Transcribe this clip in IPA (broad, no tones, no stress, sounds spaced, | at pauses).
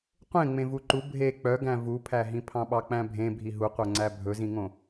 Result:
qʷ ẽ ŋ͡m ẽ v u ǃ u bʱ e k͡p œ ɡ æ̃ v u pʰ æ ɦ ĩ pʰ ɑ̃ ɓ ɑ k͡p æ̃ bʱ ẽ bʱ i ɦ u qʷ œ ŋ͡ǀ æ bʱ ɵ z ĩ ŋ õ